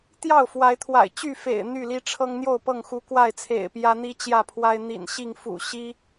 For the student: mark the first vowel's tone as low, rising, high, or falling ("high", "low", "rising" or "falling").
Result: falling